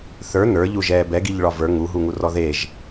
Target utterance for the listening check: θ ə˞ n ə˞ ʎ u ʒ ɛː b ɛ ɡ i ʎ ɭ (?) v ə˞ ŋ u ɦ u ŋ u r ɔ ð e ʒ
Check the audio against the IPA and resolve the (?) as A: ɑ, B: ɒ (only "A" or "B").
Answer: B